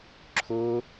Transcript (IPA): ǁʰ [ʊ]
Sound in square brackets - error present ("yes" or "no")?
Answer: no